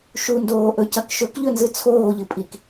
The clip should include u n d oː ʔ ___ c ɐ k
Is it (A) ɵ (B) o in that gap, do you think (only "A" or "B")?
A